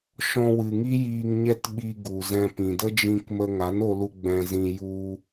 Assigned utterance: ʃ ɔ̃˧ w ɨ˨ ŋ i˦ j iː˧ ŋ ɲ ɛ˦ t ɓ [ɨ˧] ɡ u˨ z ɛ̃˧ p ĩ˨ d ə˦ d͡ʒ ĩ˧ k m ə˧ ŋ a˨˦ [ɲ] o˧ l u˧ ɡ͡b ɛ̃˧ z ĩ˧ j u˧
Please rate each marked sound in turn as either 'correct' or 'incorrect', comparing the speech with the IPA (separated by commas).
incorrect, incorrect